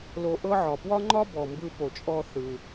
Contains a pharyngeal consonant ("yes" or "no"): yes